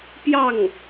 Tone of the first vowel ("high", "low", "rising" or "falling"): falling